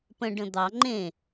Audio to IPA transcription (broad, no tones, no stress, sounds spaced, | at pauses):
p ə̃ ɖ ə̃ d̪ ɑ ŋ͡ǃ ẽ